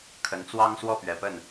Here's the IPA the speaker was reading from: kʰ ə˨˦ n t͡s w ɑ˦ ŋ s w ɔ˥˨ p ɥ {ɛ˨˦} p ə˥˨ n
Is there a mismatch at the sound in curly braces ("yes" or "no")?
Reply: no